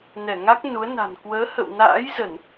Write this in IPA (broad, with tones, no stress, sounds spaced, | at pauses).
n ɛ˧˩ ŋ a˦˥ k̚ n u˨˦ ə̯ n a̤˨˩ n k w əː˨˦ h ə̰˧˨ w n a̰ː˧˥ j z ə˧˩˨ n